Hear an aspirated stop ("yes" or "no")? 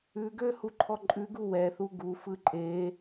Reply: yes